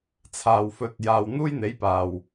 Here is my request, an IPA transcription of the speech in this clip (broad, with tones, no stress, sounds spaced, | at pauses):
t͡sʰ aː˨ w f ɵ˨˥ t̚ j aː˨ w n̪ uː˥ j n̪ e˨˥ j p aː˨˩ w